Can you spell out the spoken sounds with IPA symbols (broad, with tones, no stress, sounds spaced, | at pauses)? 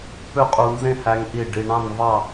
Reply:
p ø˥ qʼ u˧ n z ẽ˥˧ h æ˧ ŋ ʔ i˧˩ ɖ i˧ ɳ ɑ̃˥˧ n v ɑ˥˧